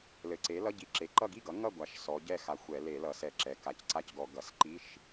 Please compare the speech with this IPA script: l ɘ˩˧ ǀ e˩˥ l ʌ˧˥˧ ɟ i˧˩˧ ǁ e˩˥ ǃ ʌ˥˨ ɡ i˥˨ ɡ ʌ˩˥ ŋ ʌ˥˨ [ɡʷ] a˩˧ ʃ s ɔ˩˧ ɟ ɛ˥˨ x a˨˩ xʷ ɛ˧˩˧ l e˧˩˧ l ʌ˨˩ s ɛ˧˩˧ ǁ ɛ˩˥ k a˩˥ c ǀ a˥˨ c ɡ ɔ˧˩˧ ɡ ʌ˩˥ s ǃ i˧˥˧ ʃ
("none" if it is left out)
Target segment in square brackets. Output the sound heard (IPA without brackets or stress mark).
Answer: ɡʷ